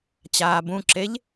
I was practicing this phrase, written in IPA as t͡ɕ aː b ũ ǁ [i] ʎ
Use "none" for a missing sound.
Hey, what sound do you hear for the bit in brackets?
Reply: e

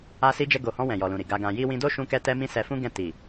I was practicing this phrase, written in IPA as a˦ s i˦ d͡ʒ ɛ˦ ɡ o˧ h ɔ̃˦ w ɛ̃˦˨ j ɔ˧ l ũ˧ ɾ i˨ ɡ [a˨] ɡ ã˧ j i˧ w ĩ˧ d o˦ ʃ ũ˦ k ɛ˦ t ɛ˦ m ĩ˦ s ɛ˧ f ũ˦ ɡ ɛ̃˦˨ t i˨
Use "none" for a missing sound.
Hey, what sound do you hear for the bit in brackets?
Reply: a˧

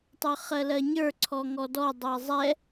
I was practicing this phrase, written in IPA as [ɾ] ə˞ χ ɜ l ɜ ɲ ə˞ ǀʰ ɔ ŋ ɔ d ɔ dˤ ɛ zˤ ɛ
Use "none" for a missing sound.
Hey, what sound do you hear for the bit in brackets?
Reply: tˤ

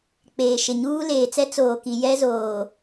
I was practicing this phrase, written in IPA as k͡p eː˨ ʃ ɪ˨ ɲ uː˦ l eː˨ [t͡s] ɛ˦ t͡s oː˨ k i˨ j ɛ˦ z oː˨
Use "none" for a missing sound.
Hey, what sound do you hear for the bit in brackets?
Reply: t͡s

